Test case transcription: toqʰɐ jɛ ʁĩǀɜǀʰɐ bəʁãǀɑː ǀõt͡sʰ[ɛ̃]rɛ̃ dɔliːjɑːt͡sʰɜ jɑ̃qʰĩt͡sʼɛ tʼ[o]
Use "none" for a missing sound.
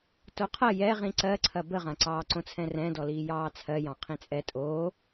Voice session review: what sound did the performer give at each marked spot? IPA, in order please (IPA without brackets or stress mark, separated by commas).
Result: ɛ̃, o